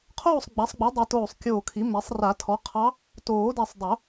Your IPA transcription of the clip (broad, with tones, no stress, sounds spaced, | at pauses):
qʰ oː˥˨ sˤ ɡ͡b a˩˥ sˤ ɡ͡b u˩˥ dˤ ɨ˨˩˦ t oː˧˩ sˤ kʲ oː˧˩ kʰ i˩˥ m ɛ˩˥ sˤ r a˨˩˦ tʰ ɔ˩˥ qʰ ɑ˧˥ | t oː˨˩˦ d ɛ˧˩ sˤ dˤ o˨˩˦